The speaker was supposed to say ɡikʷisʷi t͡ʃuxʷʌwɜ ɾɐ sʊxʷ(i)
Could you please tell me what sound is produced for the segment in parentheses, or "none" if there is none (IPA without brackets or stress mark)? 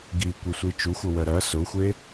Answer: e